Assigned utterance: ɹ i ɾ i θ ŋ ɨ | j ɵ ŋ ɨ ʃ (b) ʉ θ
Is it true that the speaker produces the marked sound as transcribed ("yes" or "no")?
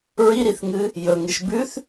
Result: yes